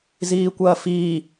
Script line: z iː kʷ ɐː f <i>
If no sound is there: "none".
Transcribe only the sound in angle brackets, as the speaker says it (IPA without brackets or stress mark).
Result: iː